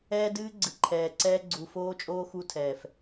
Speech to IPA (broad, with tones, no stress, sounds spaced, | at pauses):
ɛː˦ d ɨː˦ ɡ͡ǀ ɨ˨ ǃʰ ɛː˨ ǀ ɛː˦ ɡ͡ǀ u˨ f oː˦ t͡ʃʼ oː˦ x u˦ tʰ ɛː˨ f